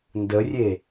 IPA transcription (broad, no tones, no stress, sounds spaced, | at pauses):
n d ə rʲ e